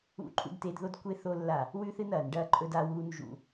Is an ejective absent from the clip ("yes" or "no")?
no